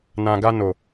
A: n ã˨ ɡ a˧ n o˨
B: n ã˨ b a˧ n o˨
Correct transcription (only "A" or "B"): A